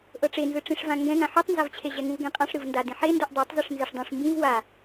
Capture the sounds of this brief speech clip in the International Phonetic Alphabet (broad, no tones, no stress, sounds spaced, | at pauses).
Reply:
ʔ ɤ ʈ͡ʂ e n z ɯ ʈ͡ʂ ĩ ʂ v ã ŋ ɡ ɛ̃ ŋ ã ħ u tˤ n z a v t͡ɕʰ e ʑ ɛ ŋ ũ v ɡ ẽ qʼ ã ʂ ɾ ɯ v n d a d ĩ ħ e n d u ʔ dˤ ɛ tˤ z e ʂ n z e ʂ dˤ ũ ʂ m b ĩ v w a